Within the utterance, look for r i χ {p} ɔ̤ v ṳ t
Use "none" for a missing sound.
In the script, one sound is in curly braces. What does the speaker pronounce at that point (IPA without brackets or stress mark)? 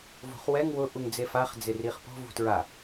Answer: p